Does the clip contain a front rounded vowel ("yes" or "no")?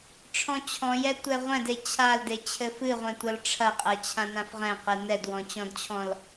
no